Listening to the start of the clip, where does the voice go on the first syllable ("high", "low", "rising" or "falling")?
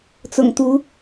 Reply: low